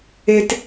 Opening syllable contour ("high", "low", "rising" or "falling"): high